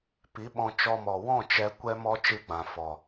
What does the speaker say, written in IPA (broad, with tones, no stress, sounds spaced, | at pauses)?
p i˨˦ ɓ ɔ̃˧ t͡ʃ ɔ˧ m ɔ˨ w ɔ̃˦˨ t͡ʃ ɛ˧ kʷ ɛ˦ m ɔ˦ t͡ʃ ɨ˧ ɡ͡b ã˨ f ɔ˨